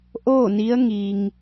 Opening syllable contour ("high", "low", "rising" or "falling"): falling